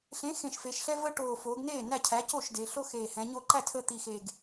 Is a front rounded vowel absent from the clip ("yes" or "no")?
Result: yes